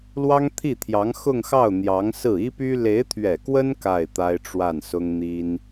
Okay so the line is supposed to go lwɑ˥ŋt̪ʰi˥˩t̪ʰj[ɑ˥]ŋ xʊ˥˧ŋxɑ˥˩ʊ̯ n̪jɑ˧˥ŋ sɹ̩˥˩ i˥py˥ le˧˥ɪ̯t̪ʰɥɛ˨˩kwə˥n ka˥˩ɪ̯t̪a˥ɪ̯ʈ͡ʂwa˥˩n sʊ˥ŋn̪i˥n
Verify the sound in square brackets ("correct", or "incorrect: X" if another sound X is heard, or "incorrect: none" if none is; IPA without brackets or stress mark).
incorrect: ɑ˧˥